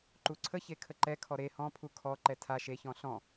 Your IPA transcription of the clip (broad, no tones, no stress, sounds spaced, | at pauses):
ǃ u ǀʰ ə ç e kʰ ə ǃ ɛ kʰ ɔ ɾ e h ɔ̃ pʰ u kʰ ɔ ǃ ɛ tʰ a ʃ e ç ɔ̃ ɬ ɔ̃